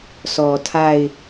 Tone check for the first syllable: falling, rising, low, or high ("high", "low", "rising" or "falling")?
low